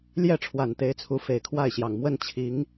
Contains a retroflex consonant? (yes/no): yes